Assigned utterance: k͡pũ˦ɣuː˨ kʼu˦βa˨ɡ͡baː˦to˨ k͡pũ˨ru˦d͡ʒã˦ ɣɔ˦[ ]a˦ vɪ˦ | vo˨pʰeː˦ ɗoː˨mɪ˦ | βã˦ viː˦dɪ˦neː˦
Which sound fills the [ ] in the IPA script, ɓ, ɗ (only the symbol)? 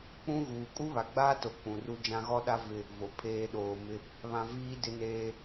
ɗ